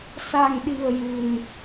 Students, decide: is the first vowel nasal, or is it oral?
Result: oral